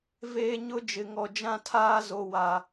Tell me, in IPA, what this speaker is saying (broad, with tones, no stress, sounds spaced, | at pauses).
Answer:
v eː˦ ɲ ʊ˦ d͡ʒ ɪ˨ ŋ ɔ˨ d͡ʒ ã˦ tʰ aː˦ z o˨ w a˨